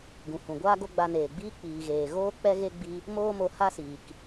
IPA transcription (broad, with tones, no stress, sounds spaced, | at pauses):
ɡ ũ˨ h ũ˨ ɡʷ aː˦ ɡ o˦ ɡ͡b a˧ n eː˨ ɡ͡b iː˦ k͡p iː˨ ɣ eː˨ ɣ oː˦ k͡p ɛ˦ ɣ e˦ ɡ͡b i˦ | m oː˦ m o˧ h a˦ s iː˨ k